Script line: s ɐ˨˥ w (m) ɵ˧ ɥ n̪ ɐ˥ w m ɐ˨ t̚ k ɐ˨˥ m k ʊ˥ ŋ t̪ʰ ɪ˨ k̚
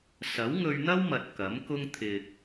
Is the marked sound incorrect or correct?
incorrect